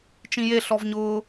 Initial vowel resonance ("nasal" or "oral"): nasal